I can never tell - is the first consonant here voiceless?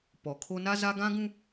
yes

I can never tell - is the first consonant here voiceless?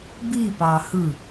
no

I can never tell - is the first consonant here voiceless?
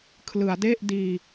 yes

